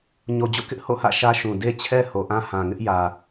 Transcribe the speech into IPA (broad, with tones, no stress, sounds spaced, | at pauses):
ɲ o˨ d͡ʑ o̰˦˨ k ɪ˦ ʔ h o̰˦˨ h ä̰˦˨ ʃ ä˦ ʃ ũ˨ d e˦ t͡ɕʰ ɛ˦ h o˨ ʔ ã˦ h ã˨ ŋ ɪ˦ ʔ j ä˨